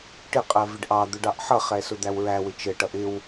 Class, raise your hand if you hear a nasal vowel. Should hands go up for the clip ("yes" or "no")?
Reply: no